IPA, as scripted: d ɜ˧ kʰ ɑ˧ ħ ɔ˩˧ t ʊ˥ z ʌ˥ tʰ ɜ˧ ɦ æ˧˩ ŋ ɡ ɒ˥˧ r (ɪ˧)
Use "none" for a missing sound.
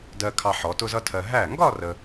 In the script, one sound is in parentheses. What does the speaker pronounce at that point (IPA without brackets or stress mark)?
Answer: ə˧